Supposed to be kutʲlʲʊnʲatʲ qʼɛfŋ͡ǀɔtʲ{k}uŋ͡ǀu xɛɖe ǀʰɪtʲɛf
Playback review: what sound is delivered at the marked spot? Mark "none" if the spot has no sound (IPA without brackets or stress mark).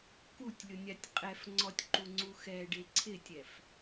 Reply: ǃ